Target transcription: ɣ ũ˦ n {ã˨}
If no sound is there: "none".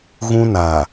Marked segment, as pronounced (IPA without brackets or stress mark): a˨